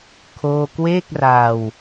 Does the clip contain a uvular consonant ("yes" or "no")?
no